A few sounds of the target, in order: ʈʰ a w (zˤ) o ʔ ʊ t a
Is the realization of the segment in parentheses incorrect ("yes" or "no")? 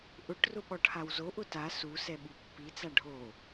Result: yes